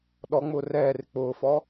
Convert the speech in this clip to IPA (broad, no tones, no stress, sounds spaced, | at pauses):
ɗ ɔ ŋ͡m ʊː r ɛː r ɪ k͡p ʊː f ɔː